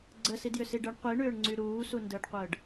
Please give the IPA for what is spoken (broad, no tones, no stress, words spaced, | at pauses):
ɡ͡ǀəsidjʏsi ɖəɳ qʷiɳʏːɳŋ͡ǀy ɾuːsundəːɖqʷəːɖ